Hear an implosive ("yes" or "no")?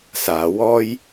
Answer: no